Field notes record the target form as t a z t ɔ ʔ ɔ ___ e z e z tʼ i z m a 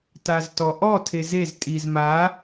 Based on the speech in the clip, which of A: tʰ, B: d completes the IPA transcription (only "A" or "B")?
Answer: A